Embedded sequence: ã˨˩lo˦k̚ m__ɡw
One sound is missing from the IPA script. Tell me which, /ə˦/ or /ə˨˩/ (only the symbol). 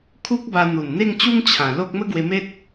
ə˦